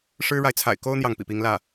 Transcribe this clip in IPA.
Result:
ʂ ɻ̩˥ ɻ a˨ ɪ̯ t͡sʰ a̰˨˩ ɪ̯ k o˥ ʊ̯ n̪ j ɑ˥˩ ŋ p ḭ˨˩ p i˧˥ ŋ l ä˥˩

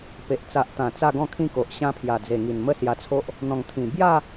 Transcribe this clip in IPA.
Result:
p e˨ ʔ t͡s a˨ ʔ t̪ ã˨˩ t͡s a˥˧ ɡ ɔ̃˥˧ kʰ ĩ˥˧ k o˨ ʔ ɕ ã˧ pʰ j a˨˩ d͡z e˨˩ ŋ i˨˩ n m ə˦ s j a˧ t͡sʰ o˦ ʔ | n̪ ɔ̃˨˩ ŋ t̪ʰ ĩ˨˩ b j a˥˧

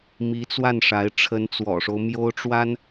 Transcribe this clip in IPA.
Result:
m i˧˥ t͡s w a˥˩ n ʂ a˧˥ ɪ̯ ʈ͡ʂʰ ə˧˥ n t͡s w ɔ̰˨˩ ʂ o˦ ʊ̯ m j o˥ ʊ̯ ʈ͡ʂ w a˥ n

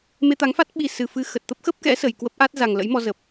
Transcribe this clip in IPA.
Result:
m e˧ t̪ a˨˦ ŋ f a˦˥ t̚ ɓ i˨˩ s ɨ˨˩ f ɨ˧ x ə˨˩ t̚ t̪ ə˦˥ p̚ x ə˦˥ p̚ k ɛ̰˧˥ s ə˨˩ j k w ə˦˥ p̚ ʔ a˦˥ t̚ z a˨˩ ŋ l ə̰˧˥ j m ɔ˧ z ə˨˩ p̚

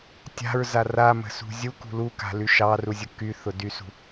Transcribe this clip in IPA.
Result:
tʲ a̤ ɹ z a r a m ə̤ s ṳ zʲ u k ṳ l u k a̤ l y ʃ ɑ r u zʲ ʊ k y θ ʊ d y s ṳ

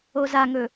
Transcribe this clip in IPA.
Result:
o z a ŋ ɵ

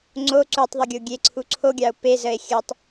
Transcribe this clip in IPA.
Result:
ŋ͡ǀ o ǀ u tˤ ðˤ ə ɡʲ o ɡʲ e ǀʰ u ǀʰ o ɡʲ ɑ o̯ p e z ə e̯ xʲ ə tˤ

